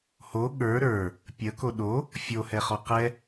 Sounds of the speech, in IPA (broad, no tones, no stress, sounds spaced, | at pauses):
h o ɠ ə˞ ɾ ə˞ | pʲ ə k o ɗ o | fʲ o h ɛ χ ɔ q ɛ